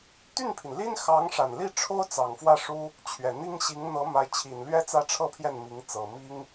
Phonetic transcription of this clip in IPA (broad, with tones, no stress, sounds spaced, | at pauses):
t̪ y˥˩ n pʰ i˩ n l i˥ n x ɑ˧˥ ŋ ʂ a˨˩ n l i˥˩ ʈ͡ʂʰ o˥ ʊ̯ t͡s ɑ˨˩ ŋ f w ä˥˩ ʂ u˥ | t͡ɕʰ ɥ ɛ˨˩ n̪ i˥ ŋ ɕ i˧˥ ŋ n̪ ɤ˧˥ m a˧˥ ɪ̯ t͡ɕʰ i˨˩ n l ɥ ɛ˥ t͡s ä˥ ʈ͡ʂʰ ɤ˥ pʰ j ɛ˥˩ n m i˧˥ ŋ t͡s ɤ˨˩ m i˥ ŋ